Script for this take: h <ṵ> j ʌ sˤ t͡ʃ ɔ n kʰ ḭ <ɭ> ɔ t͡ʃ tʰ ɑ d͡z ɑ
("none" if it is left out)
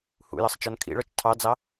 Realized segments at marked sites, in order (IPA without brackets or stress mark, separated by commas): ṵ, ɭ